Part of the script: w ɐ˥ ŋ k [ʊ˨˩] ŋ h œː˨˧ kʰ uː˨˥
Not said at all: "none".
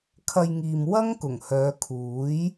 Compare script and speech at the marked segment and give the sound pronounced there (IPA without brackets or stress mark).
ʊ˨˩